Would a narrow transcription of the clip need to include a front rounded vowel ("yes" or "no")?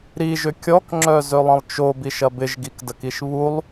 yes